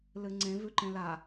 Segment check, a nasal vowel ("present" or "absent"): present